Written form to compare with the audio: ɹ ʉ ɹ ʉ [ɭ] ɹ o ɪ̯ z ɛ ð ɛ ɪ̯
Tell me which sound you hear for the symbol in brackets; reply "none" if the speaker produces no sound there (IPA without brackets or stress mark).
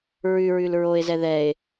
l